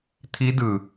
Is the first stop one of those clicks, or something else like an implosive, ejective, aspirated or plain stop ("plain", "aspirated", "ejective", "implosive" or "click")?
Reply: aspirated